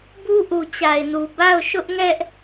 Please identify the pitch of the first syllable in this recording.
high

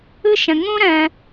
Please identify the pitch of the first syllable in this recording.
high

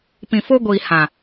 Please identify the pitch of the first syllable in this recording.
low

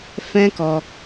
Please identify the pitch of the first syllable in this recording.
high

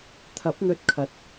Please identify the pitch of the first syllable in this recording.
rising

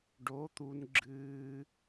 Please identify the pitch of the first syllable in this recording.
rising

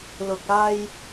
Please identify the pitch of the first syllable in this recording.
low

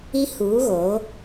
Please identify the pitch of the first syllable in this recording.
high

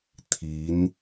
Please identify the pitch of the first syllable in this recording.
rising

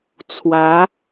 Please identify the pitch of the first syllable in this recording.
rising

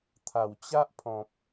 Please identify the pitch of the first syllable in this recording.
low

